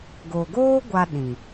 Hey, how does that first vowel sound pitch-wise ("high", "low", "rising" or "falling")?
low